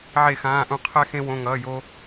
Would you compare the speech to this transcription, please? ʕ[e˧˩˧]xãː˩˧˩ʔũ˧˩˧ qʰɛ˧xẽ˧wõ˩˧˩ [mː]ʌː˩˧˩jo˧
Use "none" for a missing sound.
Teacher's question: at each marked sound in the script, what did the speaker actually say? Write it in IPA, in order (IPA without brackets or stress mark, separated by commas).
e˧˩˧, ŋ